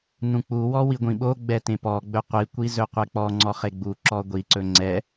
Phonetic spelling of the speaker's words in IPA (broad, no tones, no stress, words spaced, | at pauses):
nũk͡puwɔ wiɡʷĩɓoɡ͡bɛ tẽpɔɡ͡bɵ qʷikʷi zɵqʷɛk͡pɔŋ͡ǀɔ χeɡ͡buǁɔ ɡʷiǀɵ ŋ͡ǀɛ